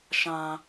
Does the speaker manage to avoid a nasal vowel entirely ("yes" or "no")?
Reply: no